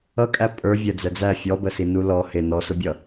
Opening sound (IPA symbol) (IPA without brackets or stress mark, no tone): ʌ